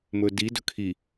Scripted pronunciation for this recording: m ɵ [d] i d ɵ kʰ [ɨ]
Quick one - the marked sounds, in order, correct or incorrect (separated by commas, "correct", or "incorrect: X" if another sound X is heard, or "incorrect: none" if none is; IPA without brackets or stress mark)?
correct, incorrect: i